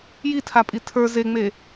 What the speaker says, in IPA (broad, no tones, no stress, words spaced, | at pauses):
jitʰapʼi tʰə˞ zeŋ͡me